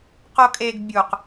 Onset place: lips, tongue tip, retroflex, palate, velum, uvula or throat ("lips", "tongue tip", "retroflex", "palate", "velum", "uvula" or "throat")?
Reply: uvula